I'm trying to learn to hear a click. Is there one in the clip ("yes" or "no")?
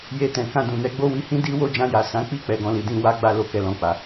no